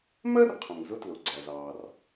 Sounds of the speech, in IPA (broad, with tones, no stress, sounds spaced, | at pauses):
m ɜ˥ r qʰ ə̃˩ ŋ z ʊ˥ t l ʊ˩ ɡ͡ǀ æ˩ z ɑː˩ r